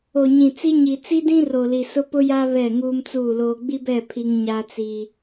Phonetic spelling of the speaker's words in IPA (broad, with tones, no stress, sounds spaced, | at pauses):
o˨ ɲ ĩ˨ t͡s i˦ ɲ i˨ t͡s i˦ d ĩ˦ r o˨ l i˨ s ʊ˦ p ʊ˦ j a˦ β ɛ˦˨ ŋ uː˦ m t͡s uː˦˨ l oː˦ ɡ͡b i˦ b ɛ˦˨ pʰ i˦ ŋ ɲ a˦ t͡s i˦